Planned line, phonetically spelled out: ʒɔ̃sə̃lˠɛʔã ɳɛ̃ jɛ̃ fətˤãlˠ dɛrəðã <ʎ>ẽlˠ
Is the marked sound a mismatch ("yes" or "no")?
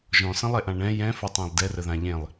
no